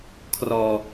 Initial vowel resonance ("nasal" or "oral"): oral